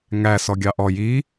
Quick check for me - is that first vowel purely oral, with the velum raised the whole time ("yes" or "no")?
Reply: yes